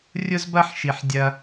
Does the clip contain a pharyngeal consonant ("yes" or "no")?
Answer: yes